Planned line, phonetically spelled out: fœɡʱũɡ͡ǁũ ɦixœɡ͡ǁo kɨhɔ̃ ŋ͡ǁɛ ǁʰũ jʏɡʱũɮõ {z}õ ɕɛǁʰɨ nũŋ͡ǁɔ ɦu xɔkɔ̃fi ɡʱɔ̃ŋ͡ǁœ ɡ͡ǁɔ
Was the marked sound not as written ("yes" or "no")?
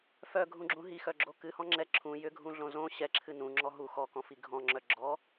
no